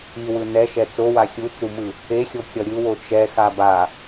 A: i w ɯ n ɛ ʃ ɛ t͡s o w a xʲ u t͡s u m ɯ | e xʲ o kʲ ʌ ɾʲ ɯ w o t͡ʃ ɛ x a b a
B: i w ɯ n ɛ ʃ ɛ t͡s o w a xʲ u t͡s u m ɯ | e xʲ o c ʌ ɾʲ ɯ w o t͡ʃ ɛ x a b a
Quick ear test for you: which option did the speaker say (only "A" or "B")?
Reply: A